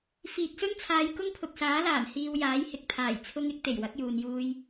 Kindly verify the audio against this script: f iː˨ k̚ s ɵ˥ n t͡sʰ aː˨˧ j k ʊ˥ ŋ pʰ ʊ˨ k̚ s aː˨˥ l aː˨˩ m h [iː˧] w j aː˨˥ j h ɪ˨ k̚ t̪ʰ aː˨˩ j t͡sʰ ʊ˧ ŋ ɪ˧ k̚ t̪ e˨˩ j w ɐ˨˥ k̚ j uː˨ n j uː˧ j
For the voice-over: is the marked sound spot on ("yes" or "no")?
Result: yes